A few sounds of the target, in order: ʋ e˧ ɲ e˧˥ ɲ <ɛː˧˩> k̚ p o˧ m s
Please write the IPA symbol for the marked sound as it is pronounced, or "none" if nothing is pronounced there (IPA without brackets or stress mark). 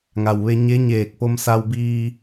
eː˧˩